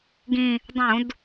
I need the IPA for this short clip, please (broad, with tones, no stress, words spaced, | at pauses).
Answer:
ɡĩ˨˩ | dˤũ˧˩˧d